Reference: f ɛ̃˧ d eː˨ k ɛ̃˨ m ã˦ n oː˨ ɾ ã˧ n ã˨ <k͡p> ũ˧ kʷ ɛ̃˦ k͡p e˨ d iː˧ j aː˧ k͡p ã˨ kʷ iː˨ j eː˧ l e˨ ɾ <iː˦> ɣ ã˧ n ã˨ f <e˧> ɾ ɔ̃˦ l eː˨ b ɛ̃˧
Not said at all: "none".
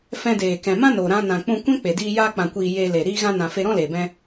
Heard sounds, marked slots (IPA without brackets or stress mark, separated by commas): k͡p, iː˧, e˧